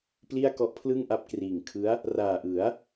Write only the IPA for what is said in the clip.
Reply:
pli˥˩a̯kɔ˦˥ʔpʰlɯ˥˩ŋ ʔa˦˥p̚kriː˨˩ŋkʰɯ˦˥a̯ | raː˨˩ʔɯ˩˦a̯

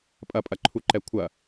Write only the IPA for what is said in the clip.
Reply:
pʼɐpʼɐǃʰuǃɛ kʷʰɐ

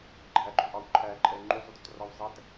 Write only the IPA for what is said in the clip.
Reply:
ɡ͡ǃæɡ͡ǃøʔɑw ǃʰæǃʼɛ ŋ͡ǃuzˤudœtrɑw zˤæt

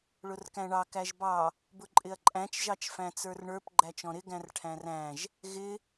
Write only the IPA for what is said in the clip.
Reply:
ɭʊrkæ̃ɳɑ kæʒbɑ | bʊǃʼɪɐ̯ǃʼæ̃t͡ʃ ʒɑt͡ʃfæ̃t͡sə˞rɳə˞p ɡ͡ǃæt͡ʃɔ̃ɾɪ ɡæ̃rʈʰæ̃ræ̃ʒ | ɣɪ

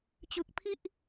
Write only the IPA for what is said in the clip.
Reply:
t͡ɕɯ˨˩k̚pʰi˥˩ʔ

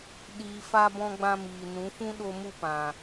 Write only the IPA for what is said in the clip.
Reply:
ɗiː˨fa˧ bɔ̃˧ɡ͡bã˧ miː˨nũ˨˦fũ˦ ɗo˧mu˧pã˨

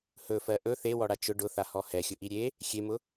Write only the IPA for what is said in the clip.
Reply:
hɵfɜ ʔɵ θewɔɽa t͡ʃʊ ɖʊθahɔ hɛxʲʊʔi ɾʲe | xʲemʊ

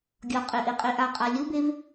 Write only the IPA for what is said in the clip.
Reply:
ɡʲɒqʼeʔeqʼe ʔaqʼa lʲubev

